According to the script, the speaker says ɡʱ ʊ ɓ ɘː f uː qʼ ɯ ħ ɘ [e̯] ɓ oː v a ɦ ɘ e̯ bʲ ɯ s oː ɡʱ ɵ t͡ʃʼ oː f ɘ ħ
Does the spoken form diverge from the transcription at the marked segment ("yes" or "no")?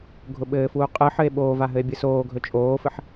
no